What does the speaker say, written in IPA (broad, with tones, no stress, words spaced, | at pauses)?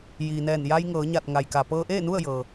jiː˩nɛː˧˩n ja˧jŋɤː˩˧ɲa˧˩t̚ ŋa˩jka˩ pɤː˧ʔeː˥˨nu˥˨ə̯ jɤː˩